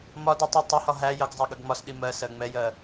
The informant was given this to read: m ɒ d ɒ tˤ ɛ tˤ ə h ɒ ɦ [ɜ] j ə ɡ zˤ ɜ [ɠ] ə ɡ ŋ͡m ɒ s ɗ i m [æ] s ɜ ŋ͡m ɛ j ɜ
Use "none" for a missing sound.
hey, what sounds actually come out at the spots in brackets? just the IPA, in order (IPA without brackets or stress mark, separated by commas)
æ, ɠ, ɜ